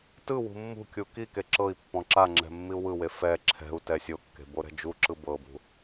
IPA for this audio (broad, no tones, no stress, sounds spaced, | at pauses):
t ɯ w ṳ mː ṳ kʲ u k i k e ǁ ɤ i̯ pː ɔ̃ ǁ a ŋ͡ǁ ɛ̤ mː i u̯ w ɯ w e f ɛ ǁʰ ɛ̤ u̯ t ɛ sʲ o kː e̤ b o ɾ ɛ̤ d͡ʒ u ǁ ɯ b ɤ b ṳ